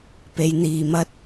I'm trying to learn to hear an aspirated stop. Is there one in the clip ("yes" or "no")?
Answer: no